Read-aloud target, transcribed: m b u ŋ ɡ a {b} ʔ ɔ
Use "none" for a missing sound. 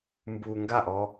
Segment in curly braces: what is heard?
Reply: none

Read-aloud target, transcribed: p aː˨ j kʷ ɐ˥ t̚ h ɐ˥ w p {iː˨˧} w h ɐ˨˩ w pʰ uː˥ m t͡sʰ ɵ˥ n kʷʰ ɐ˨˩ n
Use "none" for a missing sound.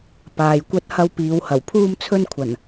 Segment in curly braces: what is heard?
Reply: iː˨˧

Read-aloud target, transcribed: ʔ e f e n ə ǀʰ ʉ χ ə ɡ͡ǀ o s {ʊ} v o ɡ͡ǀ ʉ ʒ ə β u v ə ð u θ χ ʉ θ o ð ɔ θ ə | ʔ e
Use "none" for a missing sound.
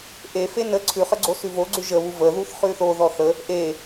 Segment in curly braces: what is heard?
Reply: ʉ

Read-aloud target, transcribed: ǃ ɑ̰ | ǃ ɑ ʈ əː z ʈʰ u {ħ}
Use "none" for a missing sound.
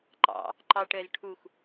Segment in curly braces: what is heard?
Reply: x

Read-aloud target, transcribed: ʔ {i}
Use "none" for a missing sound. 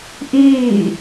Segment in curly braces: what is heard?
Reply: iː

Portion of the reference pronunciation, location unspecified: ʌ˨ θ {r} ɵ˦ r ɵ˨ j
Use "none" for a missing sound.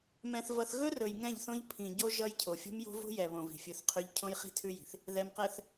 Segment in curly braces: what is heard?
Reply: ɣ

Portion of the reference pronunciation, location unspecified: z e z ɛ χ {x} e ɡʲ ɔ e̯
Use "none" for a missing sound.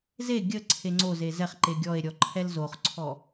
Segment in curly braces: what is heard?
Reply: ǃ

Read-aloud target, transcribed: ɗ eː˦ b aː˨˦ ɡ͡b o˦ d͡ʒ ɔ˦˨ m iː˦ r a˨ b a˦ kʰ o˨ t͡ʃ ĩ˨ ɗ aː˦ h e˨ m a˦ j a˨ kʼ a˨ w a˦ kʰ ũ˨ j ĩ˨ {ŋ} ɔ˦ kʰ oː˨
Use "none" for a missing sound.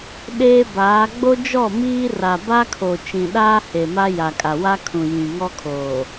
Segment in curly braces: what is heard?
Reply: ŋ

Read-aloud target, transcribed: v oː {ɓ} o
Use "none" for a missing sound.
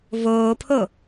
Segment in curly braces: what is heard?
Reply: pʰ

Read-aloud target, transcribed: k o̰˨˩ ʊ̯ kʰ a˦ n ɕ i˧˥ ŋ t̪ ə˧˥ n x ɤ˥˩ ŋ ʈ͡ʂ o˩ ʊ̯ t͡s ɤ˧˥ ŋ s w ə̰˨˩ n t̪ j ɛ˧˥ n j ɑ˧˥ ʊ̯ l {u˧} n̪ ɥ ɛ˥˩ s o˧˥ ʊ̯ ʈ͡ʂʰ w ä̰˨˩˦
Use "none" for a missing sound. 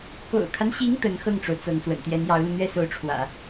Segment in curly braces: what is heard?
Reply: u˧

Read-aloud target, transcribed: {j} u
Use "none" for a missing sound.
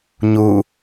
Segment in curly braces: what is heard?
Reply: ɲ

